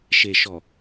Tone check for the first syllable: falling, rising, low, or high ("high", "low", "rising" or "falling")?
low